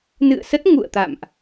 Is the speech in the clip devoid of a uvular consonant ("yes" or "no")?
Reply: yes